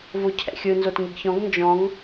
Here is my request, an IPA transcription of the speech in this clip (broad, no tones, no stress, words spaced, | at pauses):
vocʰɛ̰xʲɯ nzotŋiɡçɔ̃ɡ nd͡ʒɔ̃ŋ